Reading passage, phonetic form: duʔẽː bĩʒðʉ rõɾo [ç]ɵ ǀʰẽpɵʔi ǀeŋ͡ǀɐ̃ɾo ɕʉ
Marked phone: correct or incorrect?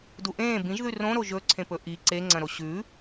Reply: incorrect